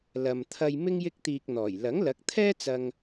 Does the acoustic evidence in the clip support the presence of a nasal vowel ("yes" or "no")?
no